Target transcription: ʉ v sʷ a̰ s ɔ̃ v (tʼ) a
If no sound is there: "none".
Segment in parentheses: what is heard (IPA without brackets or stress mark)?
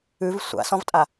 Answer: tʼ